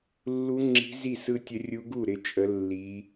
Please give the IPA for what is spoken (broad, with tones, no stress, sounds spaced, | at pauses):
lː u˦˥ ŋ͡ǁ i̤˦˥ z i˥˨ s ɯ˦˥ tʲ ə˦˥ rʲ u˦˥ ɡ u˥˨ ɾ ɪ˦˥ t͡ʃʼ ə˦˥ lː i˦˥